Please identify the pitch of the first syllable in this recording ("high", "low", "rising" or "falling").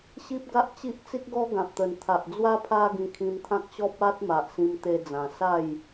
high